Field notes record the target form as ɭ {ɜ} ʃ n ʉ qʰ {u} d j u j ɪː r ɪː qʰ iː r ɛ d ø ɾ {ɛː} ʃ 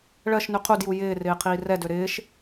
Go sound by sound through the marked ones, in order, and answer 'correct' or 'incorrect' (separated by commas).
correct, correct, incorrect